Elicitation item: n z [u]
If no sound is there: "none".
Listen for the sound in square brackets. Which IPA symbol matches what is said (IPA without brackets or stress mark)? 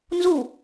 u